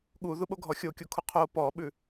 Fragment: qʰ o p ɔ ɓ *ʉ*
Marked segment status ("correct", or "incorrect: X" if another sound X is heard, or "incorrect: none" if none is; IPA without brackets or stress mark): correct